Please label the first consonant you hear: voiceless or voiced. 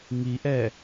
voiced